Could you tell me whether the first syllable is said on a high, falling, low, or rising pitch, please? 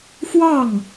falling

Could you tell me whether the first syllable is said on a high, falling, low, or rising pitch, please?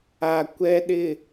low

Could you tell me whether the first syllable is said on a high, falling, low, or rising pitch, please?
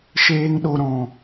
high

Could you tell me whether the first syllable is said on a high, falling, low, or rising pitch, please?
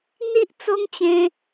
high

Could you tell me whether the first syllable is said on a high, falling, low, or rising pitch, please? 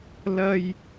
high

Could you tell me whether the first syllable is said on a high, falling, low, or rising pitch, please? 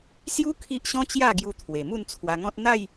high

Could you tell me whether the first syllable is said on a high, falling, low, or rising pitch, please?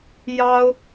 high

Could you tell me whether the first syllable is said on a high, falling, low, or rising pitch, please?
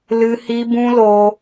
high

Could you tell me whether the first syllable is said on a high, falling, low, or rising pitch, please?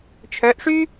rising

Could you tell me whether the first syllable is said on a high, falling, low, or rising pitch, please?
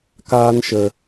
high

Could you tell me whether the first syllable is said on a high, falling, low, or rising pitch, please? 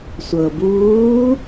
low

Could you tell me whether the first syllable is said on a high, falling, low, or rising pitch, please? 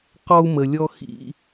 high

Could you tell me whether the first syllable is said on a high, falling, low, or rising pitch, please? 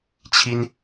high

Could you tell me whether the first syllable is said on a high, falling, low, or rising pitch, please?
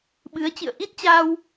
rising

